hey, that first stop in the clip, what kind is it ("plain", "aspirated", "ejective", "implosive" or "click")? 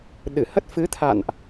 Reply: implosive